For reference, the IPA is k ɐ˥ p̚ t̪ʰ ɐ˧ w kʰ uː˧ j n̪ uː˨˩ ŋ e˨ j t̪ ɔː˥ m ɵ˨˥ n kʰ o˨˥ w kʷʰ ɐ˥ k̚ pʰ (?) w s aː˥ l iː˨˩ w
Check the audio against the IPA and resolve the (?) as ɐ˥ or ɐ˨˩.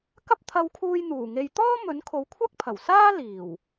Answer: ɐ˨˩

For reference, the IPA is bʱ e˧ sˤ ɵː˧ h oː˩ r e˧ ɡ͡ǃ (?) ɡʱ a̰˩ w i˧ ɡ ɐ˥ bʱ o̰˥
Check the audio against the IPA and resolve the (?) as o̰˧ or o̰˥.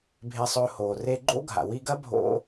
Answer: o̰˥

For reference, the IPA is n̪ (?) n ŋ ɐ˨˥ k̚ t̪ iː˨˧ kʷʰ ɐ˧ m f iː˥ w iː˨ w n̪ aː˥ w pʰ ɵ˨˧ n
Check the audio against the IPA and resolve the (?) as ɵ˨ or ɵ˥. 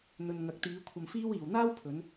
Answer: ɵ˨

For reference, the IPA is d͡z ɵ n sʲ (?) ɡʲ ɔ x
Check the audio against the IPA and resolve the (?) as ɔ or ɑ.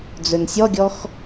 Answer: ɔ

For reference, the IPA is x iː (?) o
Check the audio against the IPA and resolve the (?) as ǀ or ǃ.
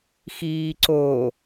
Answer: ǀ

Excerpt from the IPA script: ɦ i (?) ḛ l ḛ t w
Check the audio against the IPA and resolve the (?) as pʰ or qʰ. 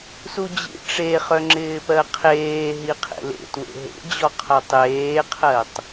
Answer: qʰ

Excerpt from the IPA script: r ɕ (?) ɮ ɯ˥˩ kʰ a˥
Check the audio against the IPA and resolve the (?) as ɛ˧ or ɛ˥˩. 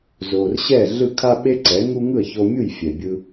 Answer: ɛ˥˩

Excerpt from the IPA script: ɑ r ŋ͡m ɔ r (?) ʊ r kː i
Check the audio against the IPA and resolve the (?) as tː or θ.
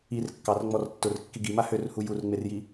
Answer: tː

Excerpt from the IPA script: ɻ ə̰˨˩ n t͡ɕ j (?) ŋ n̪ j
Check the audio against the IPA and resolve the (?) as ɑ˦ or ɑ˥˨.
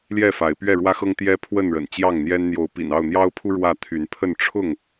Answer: ɑ˥˨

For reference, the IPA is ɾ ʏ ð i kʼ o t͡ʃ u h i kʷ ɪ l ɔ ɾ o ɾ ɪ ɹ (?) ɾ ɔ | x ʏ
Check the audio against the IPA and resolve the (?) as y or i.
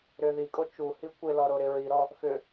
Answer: i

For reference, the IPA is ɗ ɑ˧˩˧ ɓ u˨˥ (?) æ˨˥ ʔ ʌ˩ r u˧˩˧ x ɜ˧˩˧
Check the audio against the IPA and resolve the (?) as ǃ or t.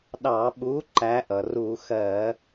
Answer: ǃ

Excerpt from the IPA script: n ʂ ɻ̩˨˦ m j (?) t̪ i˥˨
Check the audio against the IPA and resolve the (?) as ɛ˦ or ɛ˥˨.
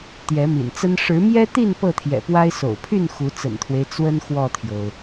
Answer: ɛ˦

